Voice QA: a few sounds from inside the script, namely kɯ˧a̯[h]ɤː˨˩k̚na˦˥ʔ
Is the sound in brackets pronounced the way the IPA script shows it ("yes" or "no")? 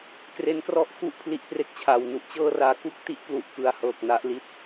yes